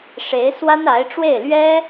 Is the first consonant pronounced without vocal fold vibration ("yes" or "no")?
yes